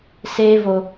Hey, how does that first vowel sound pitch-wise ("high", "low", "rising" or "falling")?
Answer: high